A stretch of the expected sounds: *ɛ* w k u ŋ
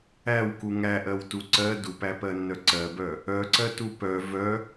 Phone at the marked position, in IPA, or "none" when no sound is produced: æ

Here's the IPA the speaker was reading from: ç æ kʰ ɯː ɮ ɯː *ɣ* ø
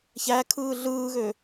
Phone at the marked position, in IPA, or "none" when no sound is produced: ɣ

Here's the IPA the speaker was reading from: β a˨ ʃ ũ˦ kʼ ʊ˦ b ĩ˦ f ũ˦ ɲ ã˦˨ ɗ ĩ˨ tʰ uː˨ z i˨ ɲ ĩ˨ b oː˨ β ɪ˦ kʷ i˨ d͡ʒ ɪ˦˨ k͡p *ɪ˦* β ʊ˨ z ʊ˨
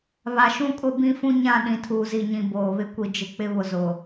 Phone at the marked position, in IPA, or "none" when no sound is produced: ɪ˦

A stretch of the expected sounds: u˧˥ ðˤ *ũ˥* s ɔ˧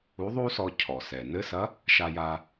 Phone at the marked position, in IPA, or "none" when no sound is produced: u˥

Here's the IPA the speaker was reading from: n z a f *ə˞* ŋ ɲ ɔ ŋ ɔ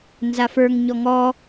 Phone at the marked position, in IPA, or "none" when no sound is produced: ə˞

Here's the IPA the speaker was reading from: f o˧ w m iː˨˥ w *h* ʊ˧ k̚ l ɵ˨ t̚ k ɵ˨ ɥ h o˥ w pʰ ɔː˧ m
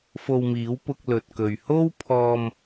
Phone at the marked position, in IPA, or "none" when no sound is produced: p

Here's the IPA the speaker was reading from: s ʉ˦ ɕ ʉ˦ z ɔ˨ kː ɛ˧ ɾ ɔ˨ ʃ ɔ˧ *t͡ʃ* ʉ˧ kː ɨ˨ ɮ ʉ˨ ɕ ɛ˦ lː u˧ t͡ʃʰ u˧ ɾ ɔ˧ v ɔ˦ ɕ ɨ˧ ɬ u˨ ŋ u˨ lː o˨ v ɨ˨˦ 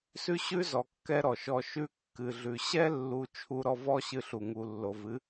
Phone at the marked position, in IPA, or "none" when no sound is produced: ʃ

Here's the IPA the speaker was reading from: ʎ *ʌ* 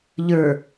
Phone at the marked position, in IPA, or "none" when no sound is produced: ə˞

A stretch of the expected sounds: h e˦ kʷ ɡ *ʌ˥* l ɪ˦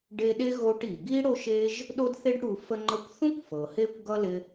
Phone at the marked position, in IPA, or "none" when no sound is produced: ʌ˥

